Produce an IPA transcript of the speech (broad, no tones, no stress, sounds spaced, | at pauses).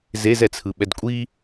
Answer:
z e z ɛ t͡sʰ ɯ ɓ ɛ d kʷʼ i